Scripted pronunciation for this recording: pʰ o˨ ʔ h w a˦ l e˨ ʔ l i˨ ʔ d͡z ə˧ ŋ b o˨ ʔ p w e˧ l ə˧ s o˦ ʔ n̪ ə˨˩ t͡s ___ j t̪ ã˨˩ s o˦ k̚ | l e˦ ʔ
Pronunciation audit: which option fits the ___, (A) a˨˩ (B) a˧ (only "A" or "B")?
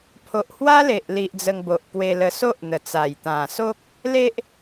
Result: A